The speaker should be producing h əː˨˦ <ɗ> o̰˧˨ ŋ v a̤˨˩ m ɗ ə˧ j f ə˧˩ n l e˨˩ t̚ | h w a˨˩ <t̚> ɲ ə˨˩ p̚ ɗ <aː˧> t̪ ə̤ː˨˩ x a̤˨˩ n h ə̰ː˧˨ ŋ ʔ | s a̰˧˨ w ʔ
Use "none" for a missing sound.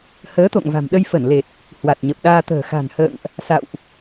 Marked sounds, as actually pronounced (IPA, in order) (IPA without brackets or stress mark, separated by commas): t̪, t̚, aː˧